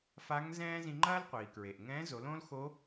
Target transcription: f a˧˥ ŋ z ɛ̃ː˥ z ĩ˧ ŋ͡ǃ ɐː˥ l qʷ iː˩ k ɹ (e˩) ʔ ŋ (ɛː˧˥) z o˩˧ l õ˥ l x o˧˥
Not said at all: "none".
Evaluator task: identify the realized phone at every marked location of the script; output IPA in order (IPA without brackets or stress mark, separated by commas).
e˩, ɛ̃ː˧˥